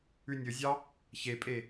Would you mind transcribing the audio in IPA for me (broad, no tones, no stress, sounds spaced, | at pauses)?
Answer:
ʉ nʲ ɵ zʲ ɑ | ç e pʼ e